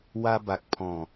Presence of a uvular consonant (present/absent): absent